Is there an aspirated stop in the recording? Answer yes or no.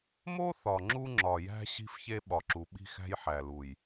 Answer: no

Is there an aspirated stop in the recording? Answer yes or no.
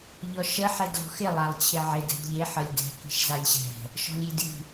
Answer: yes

